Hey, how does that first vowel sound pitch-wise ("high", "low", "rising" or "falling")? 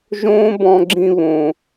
high